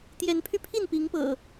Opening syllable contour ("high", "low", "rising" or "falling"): rising